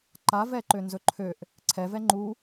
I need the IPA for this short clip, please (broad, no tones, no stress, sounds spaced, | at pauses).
ǃ a v ɛ ǃ ø n z ɵ ǃʰ ø ʔ | ǀʰ ɛ v ɛ ŋ͡ǃ u